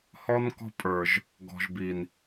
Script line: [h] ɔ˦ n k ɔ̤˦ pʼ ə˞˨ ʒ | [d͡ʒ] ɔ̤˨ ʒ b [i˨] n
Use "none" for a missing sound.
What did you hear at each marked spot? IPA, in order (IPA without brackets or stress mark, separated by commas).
h, ɡ, i˨